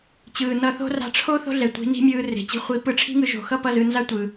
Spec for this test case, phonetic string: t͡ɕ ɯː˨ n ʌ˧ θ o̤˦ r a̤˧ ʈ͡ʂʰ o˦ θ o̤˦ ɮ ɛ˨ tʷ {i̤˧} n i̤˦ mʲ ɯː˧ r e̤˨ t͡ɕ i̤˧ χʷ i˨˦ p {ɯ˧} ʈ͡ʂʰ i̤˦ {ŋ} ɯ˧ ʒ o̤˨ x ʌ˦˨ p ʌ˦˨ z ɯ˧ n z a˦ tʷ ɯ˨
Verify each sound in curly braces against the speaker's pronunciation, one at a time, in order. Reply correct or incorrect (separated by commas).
incorrect, correct, correct